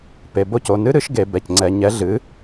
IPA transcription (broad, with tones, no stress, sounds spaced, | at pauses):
p e˩˧˩ b o˥˨ c o˩˧˩ n ɨ˦˥ ɾ ɨ˨˥ ʃ ɡ e˧˩˧ b ɛ˩˧˩ c ŋ͡ǀ ɛ˧˩˧ ɲ ɛ˨˥ ɮ ɨ˨˥